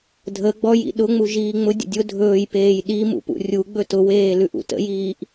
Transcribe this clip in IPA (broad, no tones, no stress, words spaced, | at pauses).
dʱə ɡ͡bɔjḭ ɗʊ ŋ͡muʒiːŋ͡mʊdʲə̰ dʲʊ dʱɵːjpeːj ɗi mṵpṵrʲuɡ͡bɵ tʊweː lʉʔṵtə̰jiːʔ